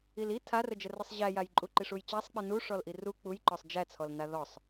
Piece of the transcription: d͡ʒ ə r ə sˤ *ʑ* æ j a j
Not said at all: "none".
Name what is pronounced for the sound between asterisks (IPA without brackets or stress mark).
ʑ